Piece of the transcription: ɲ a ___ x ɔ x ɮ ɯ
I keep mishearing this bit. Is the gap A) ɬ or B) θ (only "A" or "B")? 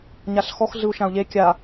A